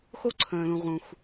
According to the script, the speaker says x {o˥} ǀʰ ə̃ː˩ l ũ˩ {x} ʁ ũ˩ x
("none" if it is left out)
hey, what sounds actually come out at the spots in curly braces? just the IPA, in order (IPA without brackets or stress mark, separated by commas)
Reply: o˥, none